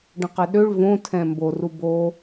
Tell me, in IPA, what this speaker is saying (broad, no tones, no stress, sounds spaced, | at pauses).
ɖ ə̃ q ɛ ɗ ø ɭ v õ tʰ ɛ̃ m b o r u b o